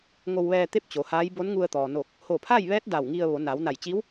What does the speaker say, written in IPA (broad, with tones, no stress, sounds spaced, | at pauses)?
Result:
ŋ o˧ w ʋ ɛː˧ t̪ e˥˨ p̚ t͡ɕ o˩˧ h aː˧˥ j b o˧˥ n ŋ u˧ ə̯ t̪ ɔː˩ n o˧˩ k̚ | h o˧˩ pʰ a˥˨ j ʋ ɛː˧˥ t̚ d a˧˩ w ŋ i˧ ə̯ ʋ o˩˧ n aː˩˧ w n a˧˩ j t͡ɕ iː˧˥ w